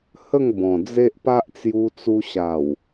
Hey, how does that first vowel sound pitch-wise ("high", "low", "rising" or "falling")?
falling